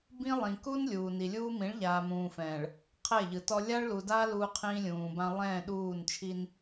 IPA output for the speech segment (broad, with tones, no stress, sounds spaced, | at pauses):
b ĩ˦ lˠ ĩ˨ k u˦ n lʲ uː˨ n i˨ lʲ uː˦ m ĩ˨˦ ɭ ʎ aː˨ m ũː˨ f ɛ̃ː˨ ɭ | qʰ ɛ˦˨ ʎ ɯ˨ t ɔ˦ lʲ a˦ ɭ l u˨ d aː˦ l uː˦ qʰ ĩː˦ lʲ ũː˨ b ã˦ lˠ ɛ̃ː˦˨ ɗ uː˦˨ n t͡ʃʰ i˦ n